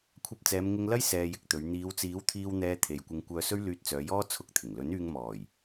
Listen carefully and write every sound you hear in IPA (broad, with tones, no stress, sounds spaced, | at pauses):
kʷʰ ɐ˧ p̚ t͡s ɛː˨˧ m ŋ ɪ˧ ŋ l ɐ˥ j s ɛː˧ j ɪ˧ k̚ t̪ ɵ˨˧ ɥ n̪ iː˨˧ w t͡s iː˨˥ w t̪ʰ iː˧ w n̪ ɛː˧ t̪ʰ e˨ j kʷ ɪ˧ ŋ kʷ œː˧ s ɵ˥ ɥ l yː˧ t̚ t͡s œː˨˧ j ɔː˥ t͡sʰ ʊ˧ k̚ t̪ʰ ɪ˨˩ ŋ l ɵ˨˥ n yː˧ ŋ m ɔː˨˩ j